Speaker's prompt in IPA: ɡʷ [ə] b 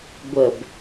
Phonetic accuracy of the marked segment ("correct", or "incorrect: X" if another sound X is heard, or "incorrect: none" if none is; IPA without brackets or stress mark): correct